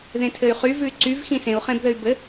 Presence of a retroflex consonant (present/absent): absent